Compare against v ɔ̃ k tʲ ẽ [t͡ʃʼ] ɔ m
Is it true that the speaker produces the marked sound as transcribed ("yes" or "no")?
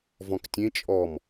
yes